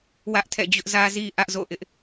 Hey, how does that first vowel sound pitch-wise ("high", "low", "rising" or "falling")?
high